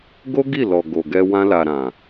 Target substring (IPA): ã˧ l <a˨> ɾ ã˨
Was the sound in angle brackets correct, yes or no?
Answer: yes